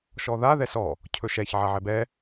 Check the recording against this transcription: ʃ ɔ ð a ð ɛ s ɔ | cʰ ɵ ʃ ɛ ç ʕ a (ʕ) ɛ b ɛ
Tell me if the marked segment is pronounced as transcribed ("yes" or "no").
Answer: yes